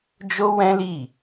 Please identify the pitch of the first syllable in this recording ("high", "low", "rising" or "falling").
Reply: high